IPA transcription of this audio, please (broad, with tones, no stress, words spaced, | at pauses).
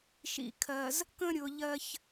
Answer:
ʃḭ˨kʰɜ˨z | kə̃˦ɾʲʊ˨ ʎɜ˦ç